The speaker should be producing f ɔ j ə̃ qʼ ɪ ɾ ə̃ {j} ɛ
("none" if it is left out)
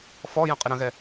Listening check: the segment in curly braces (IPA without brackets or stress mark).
ɣ